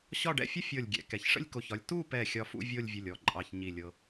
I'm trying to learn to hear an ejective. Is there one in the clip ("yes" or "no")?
yes